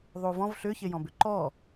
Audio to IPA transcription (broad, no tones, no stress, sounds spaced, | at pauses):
ðˤ u v ɔ̃ v ɬ ʏ ç e j ɔ̃ b ʏ ǃ ɔ